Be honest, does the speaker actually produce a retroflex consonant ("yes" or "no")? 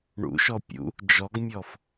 yes